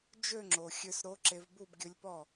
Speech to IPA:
d͡ʒ ø˥˧ ŋ͡ǁ o˩ xʲ ø˧ s ɾ o˧˥ ǁ e˧ v b u˥˧ b ɡʲ ɵ˧˥ lʲ p ɔ˥˩

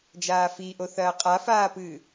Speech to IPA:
d͡ʒ aː f i ʔ o θ ɐː qʼ a f aː p ɨː

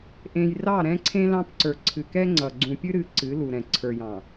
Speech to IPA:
ʔ ẽ˨ j r ɑ˦˨ ɾ ɛ̃˦ ǀʰ ẽ˦ l ɑ̃˦ p ǀ ə˞˨ ǀʰ ɨ˨ k ɛ˦ ŋ͡ǀ ʌ˨ ɡ͡ǀ ũ˨ pʲ ɨ˦ ɾ ɨ˨˦ ǀ ɨ˨˦ l u˨ ɾ ɛ̃˨ ǀʰ ə˞˨ j ɑ̃˨

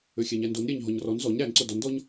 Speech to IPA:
ø xʲ æ ɲ æ n d o n ɾʲ æ ɲ ɦ ɔ ɲ r ɔ n z ɔ ɲ ɾ æ n ǀ o d ɔ n d ɔ ɲ

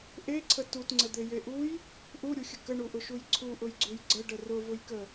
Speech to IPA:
ʔ e ǀʰ ə t u t ŋ͡ǀ ə d̪ e j e ʔ u j | ʔ u ɾʲ u xʲ ə k ə ɳ u ʔ ʊ ʃ u j ǀʰ u ʔ ʊ j ɡ͡ǀ u j ɡ͡ǀ ə ɖ ə r ʊ v ʊ j k ə

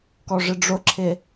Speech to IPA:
k ɔ ʐ ɪ ɖ͡ʐ ʊ ǁʰ ɪ

